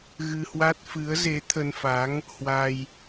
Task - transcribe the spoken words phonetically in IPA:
ɣɨ˧hwa˦˥t̚ fɨ˨˦ə̯ze˨˦ t̪ʰə˧nfa˨˦ŋ | hwa˧j

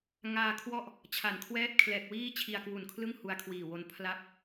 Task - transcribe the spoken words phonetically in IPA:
ŋaː˧kʰwɔ˥˩ʔ | t͡ɕʰa˨˩nkʰwɛː˥˩t̚ kʰlɛː˨˩k̚ wiː˥˩t͡ɕʰi˧a̯kwu˨˩nkʰlɯ˥˩ŋ hu˧a̯kʰwiː˨˩wo˧n pʰla˥˩p̚

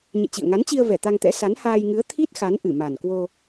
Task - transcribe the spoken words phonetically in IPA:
ɲḛ˧˨t͡ɕḭ˧˨ə̯ŋa˨˦nt͡ɕi˧ə̯ vɛ˧˩t̪a˧ŋt̪ɛ̰˧˥ sa˨˦nhaː˧jŋɨ˨˦ə̯ t̪ʰi˦˥t̚ xa˨˦n ʔɨ˧˩ma˨˩nkwo˧

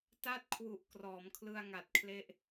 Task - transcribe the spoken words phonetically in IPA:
ta˥˩t̚kʰwu˨˩ʔ krɔː˩˦mkʰlɯ˧a̯ŋa˨˩t̚kʰle˦˥ʔ

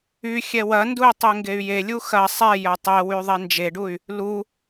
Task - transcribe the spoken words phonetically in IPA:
y xʲɛwɐndui̯ tˤeŋɡey̯jelʲu xɐ sˤɛjɐ tˤɛwy ðˤend͡ʒeɖuy̯ | lu

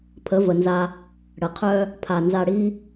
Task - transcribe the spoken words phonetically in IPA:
pʰə˨˦və˨nza˧ | ɽə˨qʰœ˦ | pʰa˨ nza˧ɽi˦

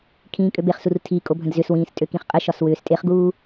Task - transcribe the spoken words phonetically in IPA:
kʰĩːkʼøbeχsur tʰi kʼobʱə̃dzʏswĩːs tʼøkĩχqʼəʃɒs wʏːstʼeχɡuː

